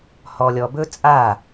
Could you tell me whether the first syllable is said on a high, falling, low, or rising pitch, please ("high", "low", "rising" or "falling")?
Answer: low